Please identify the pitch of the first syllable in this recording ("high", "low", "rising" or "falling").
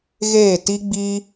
falling